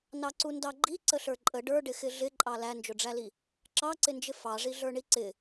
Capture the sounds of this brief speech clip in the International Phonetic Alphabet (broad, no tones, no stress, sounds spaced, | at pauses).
n ɑ ǀ u n d ɑ ɡ͡ǃ i ǀ ə ɬ ə˞ ǃʼ ə ɖ ə˞ ɖ ɪ x ɪ ɮ ɪ ǃʼ ɑ l æ n d͡ʒ ʊ ɖ͡ʐ æ l i | ǁ ɑ ǀ ɪ n d͡ʒ ɪ f ɑ ʐ i ɮ ə˞ ɳ i ǀ ɪ